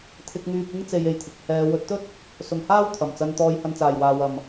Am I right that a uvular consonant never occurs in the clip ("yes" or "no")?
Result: yes